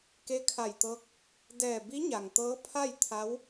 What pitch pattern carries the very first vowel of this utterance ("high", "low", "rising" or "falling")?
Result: rising